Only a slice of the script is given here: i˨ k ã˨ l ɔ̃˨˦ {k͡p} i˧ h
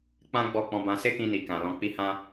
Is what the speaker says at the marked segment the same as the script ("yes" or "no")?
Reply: yes